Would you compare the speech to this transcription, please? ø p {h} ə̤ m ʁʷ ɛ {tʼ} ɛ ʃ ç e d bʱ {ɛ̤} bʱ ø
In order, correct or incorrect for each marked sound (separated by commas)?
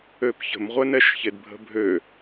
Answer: incorrect, incorrect, incorrect